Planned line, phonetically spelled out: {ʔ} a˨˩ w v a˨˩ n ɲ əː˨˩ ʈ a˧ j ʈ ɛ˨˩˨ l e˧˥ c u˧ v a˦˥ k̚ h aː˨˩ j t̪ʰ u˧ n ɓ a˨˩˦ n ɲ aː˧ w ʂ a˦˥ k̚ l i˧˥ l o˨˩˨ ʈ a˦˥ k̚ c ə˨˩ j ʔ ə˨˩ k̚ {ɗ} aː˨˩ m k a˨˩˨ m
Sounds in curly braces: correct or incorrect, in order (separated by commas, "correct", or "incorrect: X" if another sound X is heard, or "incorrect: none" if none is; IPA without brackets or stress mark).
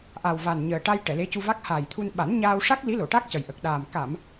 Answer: correct, correct